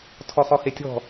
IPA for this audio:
tʰ ɔ χ ɔ h e tʲ ɔ̤

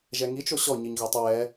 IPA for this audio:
ʒ ɛ ŋ i t͡ʃ o ɕ ɔ ɲ i ɲ ɣ ɔ tˤ ə w ɛ

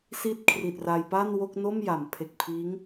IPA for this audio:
s i˥˩ t̚ kʰ r i˨˩ t̚ r a˧ j p a˥˩ n w o˥˩ k̚ n o˥˩ m j a˩˦ m pʰ e˨˩ k̚ pʰ iː˦˥ ŋ

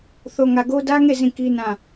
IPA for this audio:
θ o˨ ŋ ä˨ ɡ o˦ d ä˦ ŋ e˦˨ z ĩ˦˨ k i˦ n ã˦˨

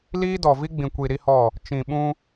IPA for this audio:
l iː˦ d ɔ˨ v i˦ ɡ͡b ĩ˨ kʷ i˨ ɾ i˦ h ɔ˦˨ | t͡ʃ ĩ˨ ɓ ũ˦

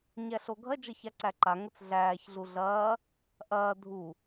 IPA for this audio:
ɲ æ ɬ o ɡʱ ɐ d͡ʒ ɐ ç a ǀ æ ǃ a ŋ ʊ t͡s ɮ æː ç ɮ u ɮ ɐː | ʔ ɐː dʱ u

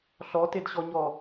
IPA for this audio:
ɬ ɔ t e d ɕ ɔ ɲ ɔ

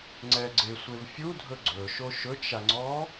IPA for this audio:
ŋ͡ǀ ɛ ɡ͡ǀ ɪ sʷ e v fʲ u dʱ ɵ ɡ͡ǀ ɵ ʃ o ʃ ɵ t͡ʃ a ŋ͡ǀ ɔ

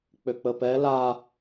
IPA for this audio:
k͡p ø k͡p ə p ɛ l a

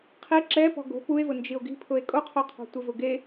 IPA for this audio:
qʰ i ǁ ɛ p ɔ̤ ɡ o̤ p u e̯ v ʊ n d͡ʒ i o̯ ɡ i̤ pʰ ʊ e̯ kʼ o qʰ o qʰ ɔ̤ tʷ ɪ v ʊ ɡ e

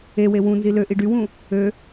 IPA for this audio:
e w e w ũ n z i l ø ʔ i ɖ y w ũ | ø

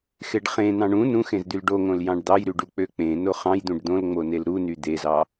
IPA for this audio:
x e ɖ χ ẽ n̪ ɑ̃ ɳ ũ n ũ x ẽ z d̪ y l ɖ o ŋ õ l j ɑ̃ ɖ d̪ ɑ j ɾ y ɖ u k͡p ø k͡p ẽ n o χ ɑ̃ j d̪ ũ ɖ d̪ õ l ŋ͡m o n e l ɾ u n y d̪ e z ɑ

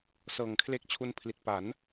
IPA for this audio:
s ɤː˨˩ ŋ kʰ l e˦˥ k̚ t͡ɕʰ u˧ n pʰ l i˨˩ t̚ p a˩˦ n

